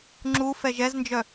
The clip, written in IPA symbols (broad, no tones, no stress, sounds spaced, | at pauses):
ŋ͡ǁ u f ɛ ʒ ɛ z n d͡ʒ œ